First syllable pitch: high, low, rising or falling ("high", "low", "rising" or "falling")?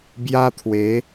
high